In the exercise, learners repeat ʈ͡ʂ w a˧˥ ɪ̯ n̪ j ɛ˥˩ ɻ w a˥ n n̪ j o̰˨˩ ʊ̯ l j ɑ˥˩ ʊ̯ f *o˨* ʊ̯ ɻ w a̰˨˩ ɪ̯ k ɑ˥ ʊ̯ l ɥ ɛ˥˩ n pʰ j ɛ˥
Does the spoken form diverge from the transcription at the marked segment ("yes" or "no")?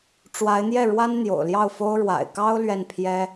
yes